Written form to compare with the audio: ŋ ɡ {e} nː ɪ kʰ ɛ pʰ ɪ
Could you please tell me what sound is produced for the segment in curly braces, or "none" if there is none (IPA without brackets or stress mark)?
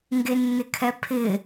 e